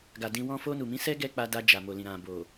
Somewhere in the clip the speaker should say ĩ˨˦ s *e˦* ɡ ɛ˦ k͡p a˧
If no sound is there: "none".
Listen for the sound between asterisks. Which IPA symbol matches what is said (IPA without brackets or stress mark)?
ɛ˦